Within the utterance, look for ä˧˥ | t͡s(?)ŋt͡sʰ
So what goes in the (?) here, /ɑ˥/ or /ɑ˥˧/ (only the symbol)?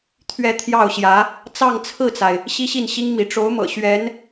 ɑ˥˧